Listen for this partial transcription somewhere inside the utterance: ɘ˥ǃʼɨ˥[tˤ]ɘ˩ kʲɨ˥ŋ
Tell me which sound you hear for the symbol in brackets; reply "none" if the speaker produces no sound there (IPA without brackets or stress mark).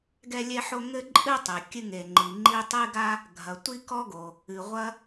tˤ